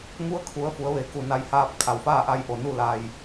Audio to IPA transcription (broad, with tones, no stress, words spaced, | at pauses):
ŋu˧˥ə̯kʰu˩˧ə̯ fu˩˧ə̯ʋe˩˧ ku˧˩ na˧jhaː˧p̚ kʰa˩wfaː˥˨ʔa˧jʔo˩ nu˥˨la˧j